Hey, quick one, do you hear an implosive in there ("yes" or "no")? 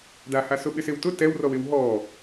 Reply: yes